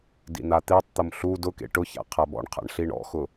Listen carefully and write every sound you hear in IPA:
dḭn̪at̪etˤt̪ʊm ɬu dʊkḛ ʈʊça̰ qʰabɔ̰ɳqʰa̰ɳ ɬiɳɔ̰xʊ

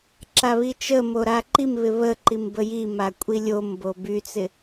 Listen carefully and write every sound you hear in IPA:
ǁaβit͡ʃə moɾaǃimβɪ βə ǃimbəji makʷʼilʲombo byt͡sɪ

